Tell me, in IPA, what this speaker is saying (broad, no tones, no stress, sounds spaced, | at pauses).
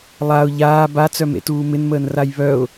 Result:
lˠ a ʊ̯ ʎ aː b a t͡s œ m ḛ t uː m ɪ n m əː n r a j β œ ʊ̯